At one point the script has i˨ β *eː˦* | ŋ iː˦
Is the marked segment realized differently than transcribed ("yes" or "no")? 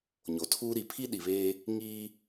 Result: no